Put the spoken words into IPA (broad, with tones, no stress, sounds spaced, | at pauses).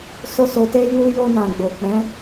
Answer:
s o˦ s o˧ t e˦ j u˦ j o˧ n ã˨ ɡ͡b o˨ k͡p ɛ̃˨˦